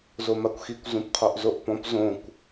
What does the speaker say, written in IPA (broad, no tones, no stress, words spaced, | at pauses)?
zomakʷxikʷ zũpqʰoʔzoʔpɔ̃p zõkʷ